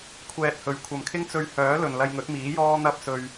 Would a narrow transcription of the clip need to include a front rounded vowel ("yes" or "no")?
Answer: yes